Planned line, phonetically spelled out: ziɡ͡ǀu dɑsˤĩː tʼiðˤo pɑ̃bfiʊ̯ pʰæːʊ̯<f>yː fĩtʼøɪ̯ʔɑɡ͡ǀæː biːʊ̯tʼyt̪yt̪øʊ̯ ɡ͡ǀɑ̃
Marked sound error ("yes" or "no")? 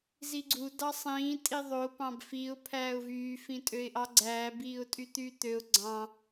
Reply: yes